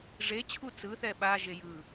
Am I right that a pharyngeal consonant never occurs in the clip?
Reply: yes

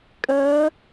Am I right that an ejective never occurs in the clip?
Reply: no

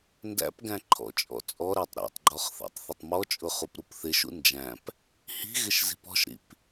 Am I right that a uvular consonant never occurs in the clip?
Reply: no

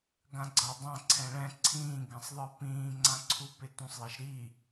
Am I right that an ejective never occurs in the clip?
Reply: yes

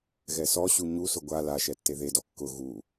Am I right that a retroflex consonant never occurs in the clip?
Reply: yes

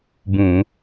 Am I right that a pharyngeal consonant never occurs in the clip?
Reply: yes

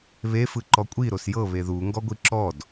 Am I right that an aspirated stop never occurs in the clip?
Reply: yes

